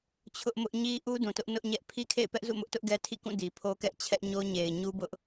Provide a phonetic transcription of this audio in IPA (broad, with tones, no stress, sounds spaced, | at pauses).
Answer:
t͡ɕʰ ʊ˦ ʔ m ʊ˦ ʔ ɲ i˦ ʔ u˦ d ũ˨ t ʊ˦ ʔ n ʊ˦ ʔ ɲ ɛ˦ ʔ pʰ i˦ kʰ ḛ˦˨ ɪ̯ p ɛ˦ ʔ z ṵ˦˨ m ʊ˦ ʔ t ʊ˦ ʔ ɡ ɛ˦ tʰ ḭ˦˨ k ũ˦˨ d i˨ pʰ o˦ k ɛ˦ ʔ t͡ɕʰ ɛ˦ ʔ ɲ o˦ ɲ e˨ ɪ̯ ɲ u˦ b ʊ˦ ʔ